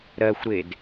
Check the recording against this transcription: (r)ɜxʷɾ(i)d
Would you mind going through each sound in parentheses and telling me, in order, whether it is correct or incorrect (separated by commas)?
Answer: incorrect, incorrect